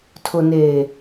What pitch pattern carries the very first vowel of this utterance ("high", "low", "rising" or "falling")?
low